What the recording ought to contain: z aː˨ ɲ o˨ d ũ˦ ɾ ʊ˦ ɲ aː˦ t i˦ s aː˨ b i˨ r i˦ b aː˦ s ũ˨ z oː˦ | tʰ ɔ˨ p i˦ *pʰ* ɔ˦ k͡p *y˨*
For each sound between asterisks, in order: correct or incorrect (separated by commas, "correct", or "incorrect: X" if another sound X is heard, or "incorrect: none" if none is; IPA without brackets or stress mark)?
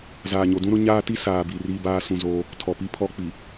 correct, incorrect: i˨